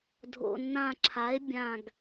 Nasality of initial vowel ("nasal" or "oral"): oral